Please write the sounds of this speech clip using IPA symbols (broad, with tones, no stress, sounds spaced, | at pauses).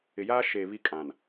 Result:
ɪ˨ j aː˦ ʃ eː˨ β i˦ kʼ ã˨ n